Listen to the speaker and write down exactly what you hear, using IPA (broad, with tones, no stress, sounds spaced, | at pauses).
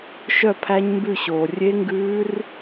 ʃ œ˥˩ pʰ æ˦˥ ɲ m b ʉ˥˩ ɕ oː˩ rʲ e˦˥ ŋ ɡ ʉː˦˥ r